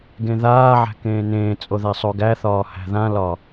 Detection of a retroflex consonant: absent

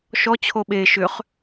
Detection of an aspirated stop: present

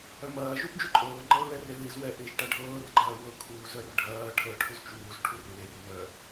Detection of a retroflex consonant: present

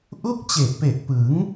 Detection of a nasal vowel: absent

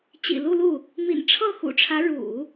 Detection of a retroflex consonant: present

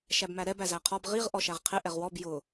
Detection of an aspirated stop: present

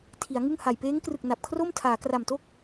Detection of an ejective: absent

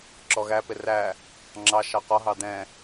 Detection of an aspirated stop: absent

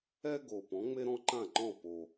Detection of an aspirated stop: absent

